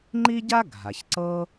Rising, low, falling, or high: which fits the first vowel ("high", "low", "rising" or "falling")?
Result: high